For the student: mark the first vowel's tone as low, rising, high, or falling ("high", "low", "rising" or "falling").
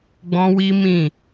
high